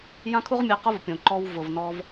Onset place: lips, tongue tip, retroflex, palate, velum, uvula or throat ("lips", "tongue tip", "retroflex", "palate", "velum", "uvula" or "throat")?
palate